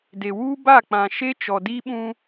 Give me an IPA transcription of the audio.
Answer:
d e˨ w uː˦ b a˦˨ k͡p ã˨ ʃ e˦ t͡ʃ ɔ˨ d i˦ ɓ ũ˦

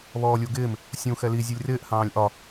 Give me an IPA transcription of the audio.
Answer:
β ɔː lʲ u ɡ ɪː m | sʲ ũ x ɛ l i zʲ u lʲ r ɪː ʔ h ɑ̃ː lʲ ʔ ɒ

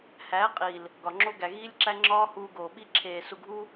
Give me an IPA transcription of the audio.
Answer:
h æː˨˦ qʼ iː˨ l | ɡ ɒ˨ ŋ͡ǁ o˧ ɡ æ˨ ɣ iː˧ lʲ ǁ æ˧ ŋ͡ǁ ɒː˧ h uː˧ ɡ oː˨ ɓ i˧ ǁʰ eː˨ s u˨ ɡʱ uː˧

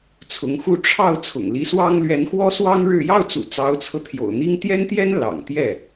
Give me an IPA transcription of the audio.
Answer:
t͡sʰ ʊ˧˥ ŋ x u˥ ʈ͡ʂʰ ɑ˥˩ ʊ̯ t͡sʰ ʊ̰˨˩ ŋ l i˧˥ s w ɑ˥ ŋ l ɥ ɛ˧˥ n x w ɔ˥ s w ɑ˥ ŋ ɻ ɻ̩˥˧ j ɑ˥˩ ʊ̯ t͡s ṵ˨˩ t͡s ɑ˧˥ ʊ̯ t͡sʰ ɤ˧ t̪ʰ j o̰˨˩ ʊ̯ n̪ i˥ ŋ t̪ j ɛ˥ n t̪ j ɛ˥ n l ɑ̰˨˩ ŋ t̪ j ɛ˥˩

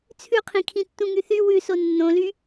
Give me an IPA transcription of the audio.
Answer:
t͡sʰ ʉ qʰ ĩ kʰ ĩ tː ũ ŋ y θ y w ʉ s o nː õ l y

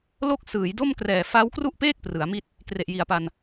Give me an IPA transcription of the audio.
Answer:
l o˥˩ k̚ s ɯː˩˦ j d o˥˩ m k r ɛː˨˩ f a˦˥ w k r u˥˩ ʔ p eː˥˩ k̚ p r ɯ˩˦ a̯ m i˥˩ t̚ | k r e˨˩ ʔ j i˩˦ a̯ p a˧ n

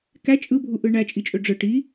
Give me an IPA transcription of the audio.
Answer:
k æ t͡ʃʼ ɯ bʱ u ʔ ɯ ɳ æ t͡ʃʼ i t͡ʃʼ ø ɖ͡ʐ ɯ ʈ i

